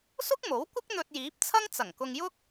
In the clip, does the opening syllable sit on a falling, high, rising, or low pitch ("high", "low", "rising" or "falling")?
high